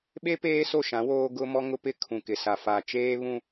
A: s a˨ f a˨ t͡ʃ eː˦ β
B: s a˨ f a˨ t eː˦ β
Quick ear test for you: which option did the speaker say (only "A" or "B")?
A